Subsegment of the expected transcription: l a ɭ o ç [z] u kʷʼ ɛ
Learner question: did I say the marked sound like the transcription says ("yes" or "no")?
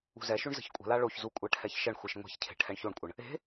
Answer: yes